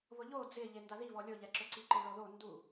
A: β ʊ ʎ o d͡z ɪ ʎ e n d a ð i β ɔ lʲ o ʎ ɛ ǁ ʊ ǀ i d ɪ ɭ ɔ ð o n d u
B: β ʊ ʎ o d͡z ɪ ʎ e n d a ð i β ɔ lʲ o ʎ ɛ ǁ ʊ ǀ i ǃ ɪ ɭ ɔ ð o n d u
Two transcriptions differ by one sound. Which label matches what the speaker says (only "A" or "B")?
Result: B